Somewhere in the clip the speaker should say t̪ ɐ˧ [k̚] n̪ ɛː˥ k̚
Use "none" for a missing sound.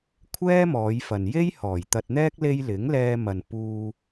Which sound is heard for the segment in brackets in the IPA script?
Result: t̚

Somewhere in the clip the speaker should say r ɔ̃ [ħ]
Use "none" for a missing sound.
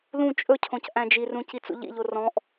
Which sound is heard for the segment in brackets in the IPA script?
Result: ʔ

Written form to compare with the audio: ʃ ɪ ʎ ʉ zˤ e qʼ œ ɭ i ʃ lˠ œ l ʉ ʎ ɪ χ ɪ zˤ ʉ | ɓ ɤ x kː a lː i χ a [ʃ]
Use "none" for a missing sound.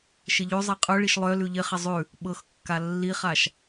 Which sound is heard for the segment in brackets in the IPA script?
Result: ʃ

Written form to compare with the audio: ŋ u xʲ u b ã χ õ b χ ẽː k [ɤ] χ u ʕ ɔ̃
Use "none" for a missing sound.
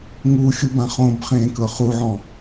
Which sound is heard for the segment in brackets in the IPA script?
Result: ɤ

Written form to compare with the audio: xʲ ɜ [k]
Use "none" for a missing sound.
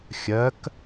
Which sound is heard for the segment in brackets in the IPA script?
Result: k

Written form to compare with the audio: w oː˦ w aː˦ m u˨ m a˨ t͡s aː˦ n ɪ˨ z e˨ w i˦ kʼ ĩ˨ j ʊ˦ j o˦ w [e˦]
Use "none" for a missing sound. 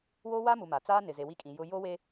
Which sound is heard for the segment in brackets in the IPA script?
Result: e˦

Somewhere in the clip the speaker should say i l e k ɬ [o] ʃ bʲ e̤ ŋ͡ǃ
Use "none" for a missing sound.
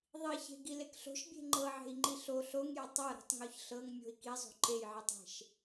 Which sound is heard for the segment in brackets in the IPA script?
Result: o̤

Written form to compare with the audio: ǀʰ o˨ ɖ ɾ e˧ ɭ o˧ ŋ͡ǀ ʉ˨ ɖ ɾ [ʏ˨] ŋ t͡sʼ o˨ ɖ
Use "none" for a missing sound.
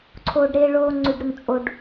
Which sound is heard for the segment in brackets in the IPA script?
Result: u˨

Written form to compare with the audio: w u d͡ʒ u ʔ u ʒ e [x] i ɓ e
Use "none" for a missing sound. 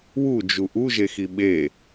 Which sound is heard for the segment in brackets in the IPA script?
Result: x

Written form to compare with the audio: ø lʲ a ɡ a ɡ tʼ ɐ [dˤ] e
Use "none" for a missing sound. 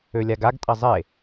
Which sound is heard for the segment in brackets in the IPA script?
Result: zˤ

